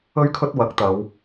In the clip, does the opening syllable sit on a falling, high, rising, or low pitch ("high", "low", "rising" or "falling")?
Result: high